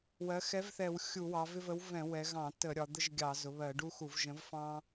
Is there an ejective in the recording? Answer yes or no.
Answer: no